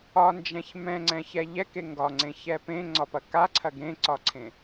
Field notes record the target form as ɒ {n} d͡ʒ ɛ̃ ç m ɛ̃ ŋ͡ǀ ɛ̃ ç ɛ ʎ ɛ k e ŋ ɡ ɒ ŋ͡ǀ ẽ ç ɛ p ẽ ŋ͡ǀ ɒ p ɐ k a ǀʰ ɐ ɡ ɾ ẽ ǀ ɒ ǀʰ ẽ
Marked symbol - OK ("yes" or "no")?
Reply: yes